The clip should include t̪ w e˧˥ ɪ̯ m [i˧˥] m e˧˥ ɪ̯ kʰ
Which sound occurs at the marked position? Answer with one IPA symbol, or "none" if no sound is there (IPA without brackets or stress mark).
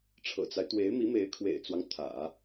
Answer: i˧˥